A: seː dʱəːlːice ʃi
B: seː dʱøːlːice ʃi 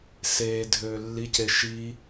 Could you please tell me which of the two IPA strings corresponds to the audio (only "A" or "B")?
B